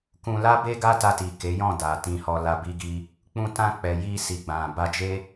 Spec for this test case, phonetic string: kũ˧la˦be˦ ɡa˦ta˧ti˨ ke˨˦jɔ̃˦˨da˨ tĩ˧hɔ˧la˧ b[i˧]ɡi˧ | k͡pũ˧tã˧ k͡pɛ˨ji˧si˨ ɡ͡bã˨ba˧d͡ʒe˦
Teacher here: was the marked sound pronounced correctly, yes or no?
yes